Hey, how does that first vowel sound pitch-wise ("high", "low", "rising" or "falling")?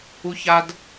high